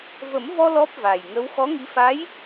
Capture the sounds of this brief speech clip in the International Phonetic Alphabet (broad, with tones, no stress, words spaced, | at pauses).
və˨˩˦mvɔ˧ lɔ˦˥p̚va˨˩jŋə˧˥w xɔ˧˥ŋi˧˥fa˧˥j